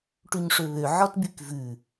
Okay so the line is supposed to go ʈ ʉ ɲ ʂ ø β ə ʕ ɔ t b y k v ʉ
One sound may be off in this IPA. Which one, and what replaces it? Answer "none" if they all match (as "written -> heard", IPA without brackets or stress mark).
ə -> ø